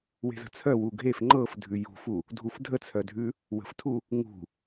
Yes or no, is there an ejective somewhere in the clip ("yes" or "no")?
no